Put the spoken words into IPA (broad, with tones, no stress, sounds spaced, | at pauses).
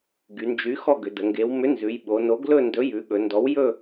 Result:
ɡ y˩˧ n d͡ʒ y˨˥ x ɔ˥˧ ɡ ʏ˩˧ d ə˩˧ ŋ ɡ e˩˧ w m ʏ˨˥ n z ʉ˩˧ j ɓ o˩˧ n o˨˥ ɡ l ɵ˥˧ n d ɵ˨˥ j ʉ˩˧ ɠ ɵ˩˧ n d ɔ˨˥ w j ɵ˥˧